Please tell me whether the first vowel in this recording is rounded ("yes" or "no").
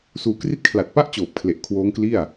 yes